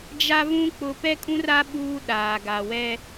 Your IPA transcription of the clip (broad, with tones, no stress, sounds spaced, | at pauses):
d͡ʒ a˦ v ũ˦ k͡p ʊ˦ p ɛ˦ kʼ ũ˦ r a˦ ɓ uː˦ ɗ aː˨ ɡ a˨ w ɛ˦